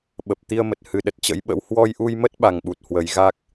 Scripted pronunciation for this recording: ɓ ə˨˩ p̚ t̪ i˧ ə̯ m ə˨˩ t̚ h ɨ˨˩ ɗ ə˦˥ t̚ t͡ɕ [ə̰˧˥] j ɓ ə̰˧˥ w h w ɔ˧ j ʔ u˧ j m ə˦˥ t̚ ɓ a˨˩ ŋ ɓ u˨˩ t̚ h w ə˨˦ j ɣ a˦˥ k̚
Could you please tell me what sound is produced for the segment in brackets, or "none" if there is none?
ə̰˧˥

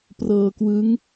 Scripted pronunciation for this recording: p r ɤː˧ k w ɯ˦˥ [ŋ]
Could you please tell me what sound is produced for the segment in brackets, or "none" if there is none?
ŋ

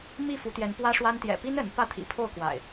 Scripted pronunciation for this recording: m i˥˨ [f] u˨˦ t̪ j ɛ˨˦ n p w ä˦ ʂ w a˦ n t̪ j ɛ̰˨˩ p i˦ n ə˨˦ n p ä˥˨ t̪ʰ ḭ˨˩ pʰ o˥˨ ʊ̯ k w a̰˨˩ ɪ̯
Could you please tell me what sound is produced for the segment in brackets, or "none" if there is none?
f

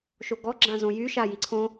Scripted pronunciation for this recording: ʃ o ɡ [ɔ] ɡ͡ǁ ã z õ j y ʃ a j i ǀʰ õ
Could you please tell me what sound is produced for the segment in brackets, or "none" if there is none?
ɔ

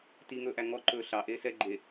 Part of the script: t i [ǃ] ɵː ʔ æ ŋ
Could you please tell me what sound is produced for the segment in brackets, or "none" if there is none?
ŋ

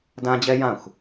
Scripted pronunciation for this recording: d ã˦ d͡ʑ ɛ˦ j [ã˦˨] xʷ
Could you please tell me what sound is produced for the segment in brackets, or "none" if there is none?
ã˦˨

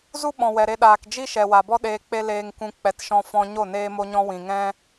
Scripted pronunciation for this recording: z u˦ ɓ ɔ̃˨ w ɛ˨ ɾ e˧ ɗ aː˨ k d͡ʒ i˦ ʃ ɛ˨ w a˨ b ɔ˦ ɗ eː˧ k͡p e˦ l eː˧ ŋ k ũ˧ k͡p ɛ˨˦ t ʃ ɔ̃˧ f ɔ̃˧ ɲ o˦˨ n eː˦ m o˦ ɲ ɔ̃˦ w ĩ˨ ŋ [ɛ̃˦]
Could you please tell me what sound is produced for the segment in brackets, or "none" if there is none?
ɛ̃˦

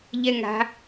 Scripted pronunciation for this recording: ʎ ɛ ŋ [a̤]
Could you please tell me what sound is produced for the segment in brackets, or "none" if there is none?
a̤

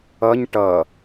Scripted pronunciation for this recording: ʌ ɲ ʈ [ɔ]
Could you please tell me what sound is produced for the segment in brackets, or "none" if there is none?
ʌ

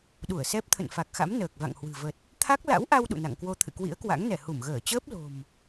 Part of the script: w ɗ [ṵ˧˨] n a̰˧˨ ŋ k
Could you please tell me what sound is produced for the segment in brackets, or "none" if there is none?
ṵ˧˨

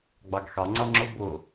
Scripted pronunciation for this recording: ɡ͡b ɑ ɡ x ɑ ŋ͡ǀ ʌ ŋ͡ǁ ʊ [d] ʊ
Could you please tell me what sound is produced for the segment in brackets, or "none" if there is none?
b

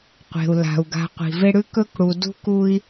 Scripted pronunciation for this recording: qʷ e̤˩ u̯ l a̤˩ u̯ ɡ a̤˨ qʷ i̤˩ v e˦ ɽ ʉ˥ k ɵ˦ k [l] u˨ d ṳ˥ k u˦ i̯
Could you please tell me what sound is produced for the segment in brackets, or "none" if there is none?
ɽ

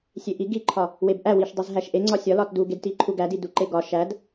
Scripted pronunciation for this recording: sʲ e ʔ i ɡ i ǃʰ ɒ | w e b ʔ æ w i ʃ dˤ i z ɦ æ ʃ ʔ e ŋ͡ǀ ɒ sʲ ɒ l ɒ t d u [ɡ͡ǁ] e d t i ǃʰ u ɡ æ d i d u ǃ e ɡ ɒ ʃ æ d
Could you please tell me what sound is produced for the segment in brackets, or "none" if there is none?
ɡ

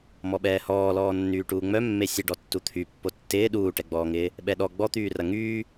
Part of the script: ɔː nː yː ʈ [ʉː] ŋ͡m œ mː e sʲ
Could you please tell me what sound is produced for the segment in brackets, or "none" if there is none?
uː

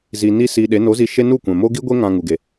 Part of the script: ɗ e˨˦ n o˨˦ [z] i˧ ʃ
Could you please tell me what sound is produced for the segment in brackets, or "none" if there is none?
z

